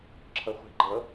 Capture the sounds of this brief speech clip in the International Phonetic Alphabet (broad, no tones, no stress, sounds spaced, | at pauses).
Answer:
ǁʰ ɤ χʷ i̤ ɡ͡ǃ ɤ